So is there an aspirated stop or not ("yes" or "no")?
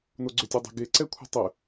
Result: yes